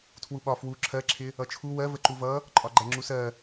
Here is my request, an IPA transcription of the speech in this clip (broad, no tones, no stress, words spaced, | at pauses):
tʰwuɓɒ fwu ǁʰɜǁʰɪ | ʌt͡ʃʰu wɜvə ǃuvʌ | ǃʼɒɡ͡ǃæŋ͡ǁusɜ